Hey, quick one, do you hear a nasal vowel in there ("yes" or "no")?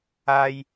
no